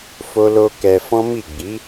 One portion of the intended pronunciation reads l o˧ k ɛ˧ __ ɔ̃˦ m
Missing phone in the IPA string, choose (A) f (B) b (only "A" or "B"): A